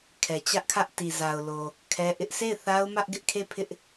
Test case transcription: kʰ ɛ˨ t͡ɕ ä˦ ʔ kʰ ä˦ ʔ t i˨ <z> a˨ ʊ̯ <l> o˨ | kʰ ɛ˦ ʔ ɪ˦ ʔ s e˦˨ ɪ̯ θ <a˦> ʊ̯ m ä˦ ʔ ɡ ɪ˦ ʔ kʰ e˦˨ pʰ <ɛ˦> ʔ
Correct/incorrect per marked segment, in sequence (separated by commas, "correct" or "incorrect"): correct, correct, correct, incorrect